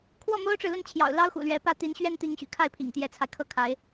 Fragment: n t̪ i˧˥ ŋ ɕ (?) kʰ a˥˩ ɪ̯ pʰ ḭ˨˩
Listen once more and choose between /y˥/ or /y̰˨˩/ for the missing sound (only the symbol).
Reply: y̰˨˩